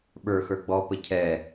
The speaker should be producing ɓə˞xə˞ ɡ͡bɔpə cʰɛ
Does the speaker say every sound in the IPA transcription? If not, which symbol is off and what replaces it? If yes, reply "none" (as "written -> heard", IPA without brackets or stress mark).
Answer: none